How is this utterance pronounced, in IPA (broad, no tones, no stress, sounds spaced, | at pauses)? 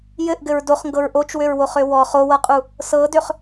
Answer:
j ɘ ʔ ɡ ɘ ɹ d o χ ŋ ɡ ɤ ɹ ʔ o t͡ʃ w ø ɹ w o χ ø w ɔ χ o w ɤ qʼ u | s ɤ d ø χ